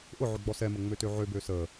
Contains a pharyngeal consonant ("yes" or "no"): yes